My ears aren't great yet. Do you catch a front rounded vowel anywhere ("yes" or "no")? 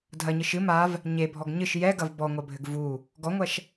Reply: no